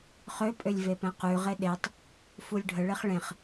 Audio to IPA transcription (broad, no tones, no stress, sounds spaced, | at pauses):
χ ø pʼ ø lʲ v e p ɛ̃ q ʉ ʁ e ɗ e tˤ | f u lʲ ɖʱ ə ɭ e χ ɭ ẽ χ